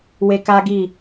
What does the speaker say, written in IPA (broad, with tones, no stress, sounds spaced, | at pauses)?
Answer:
w e˧ k a˦ ɡ i˦˨